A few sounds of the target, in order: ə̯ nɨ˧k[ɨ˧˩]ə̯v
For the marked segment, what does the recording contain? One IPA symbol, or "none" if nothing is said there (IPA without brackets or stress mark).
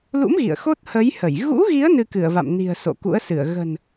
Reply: ɨ˧˩